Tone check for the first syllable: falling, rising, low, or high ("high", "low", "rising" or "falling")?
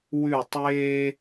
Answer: falling